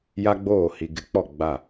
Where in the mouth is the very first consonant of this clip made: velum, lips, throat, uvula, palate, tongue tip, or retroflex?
palate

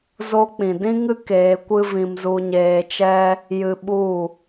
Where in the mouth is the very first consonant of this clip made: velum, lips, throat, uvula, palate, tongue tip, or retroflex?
tongue tip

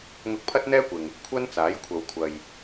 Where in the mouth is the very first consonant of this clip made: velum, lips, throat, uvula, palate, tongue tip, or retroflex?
velum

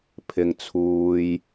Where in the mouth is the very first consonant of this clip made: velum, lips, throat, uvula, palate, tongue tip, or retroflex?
lips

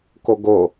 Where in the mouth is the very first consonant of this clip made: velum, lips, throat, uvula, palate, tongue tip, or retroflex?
velum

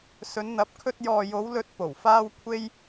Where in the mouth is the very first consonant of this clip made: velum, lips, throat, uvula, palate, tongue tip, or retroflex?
tongue tip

